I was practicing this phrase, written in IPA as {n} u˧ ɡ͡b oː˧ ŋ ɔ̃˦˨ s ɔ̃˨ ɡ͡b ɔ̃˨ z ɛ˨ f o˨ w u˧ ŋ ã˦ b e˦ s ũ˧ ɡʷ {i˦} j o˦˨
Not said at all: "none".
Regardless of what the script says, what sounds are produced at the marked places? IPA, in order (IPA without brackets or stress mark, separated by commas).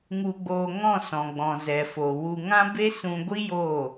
ŋ, i˦